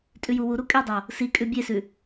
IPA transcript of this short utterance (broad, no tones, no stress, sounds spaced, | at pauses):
tʼ ʉ j u w u ɾ u kʼ e dˤ o | s i kʼ ʉ bʲ e s ʉ